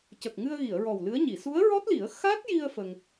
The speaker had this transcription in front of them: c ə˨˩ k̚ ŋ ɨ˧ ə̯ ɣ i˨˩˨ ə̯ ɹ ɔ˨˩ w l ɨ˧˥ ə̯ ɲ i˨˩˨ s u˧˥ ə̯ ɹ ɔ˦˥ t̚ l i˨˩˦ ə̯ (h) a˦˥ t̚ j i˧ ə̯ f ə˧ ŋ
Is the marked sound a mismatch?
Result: yes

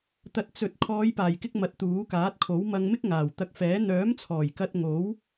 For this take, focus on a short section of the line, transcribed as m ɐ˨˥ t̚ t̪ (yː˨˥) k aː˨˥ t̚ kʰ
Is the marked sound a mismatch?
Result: yes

